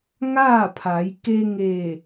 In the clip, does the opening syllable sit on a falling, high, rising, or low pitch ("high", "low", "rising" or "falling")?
falling